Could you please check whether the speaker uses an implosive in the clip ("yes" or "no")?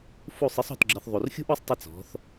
no